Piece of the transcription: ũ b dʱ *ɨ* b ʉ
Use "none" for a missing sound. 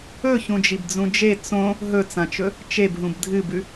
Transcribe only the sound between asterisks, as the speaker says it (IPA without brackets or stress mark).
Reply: ɨ